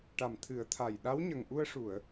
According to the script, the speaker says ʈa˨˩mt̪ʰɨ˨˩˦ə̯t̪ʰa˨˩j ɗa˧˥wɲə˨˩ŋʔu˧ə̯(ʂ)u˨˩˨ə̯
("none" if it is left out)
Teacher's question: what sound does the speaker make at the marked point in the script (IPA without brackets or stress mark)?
ʂ